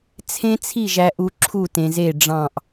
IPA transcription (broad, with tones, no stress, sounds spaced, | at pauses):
t͡sʰ ẽ˦ t͡sʰ i˦˨ ʒ æ˨ ʔ u˨ ǁʰ u˦˨ t ẽ˨ z e˦˨ ɖ͡ʐ ɑ̃˦˨ ʔ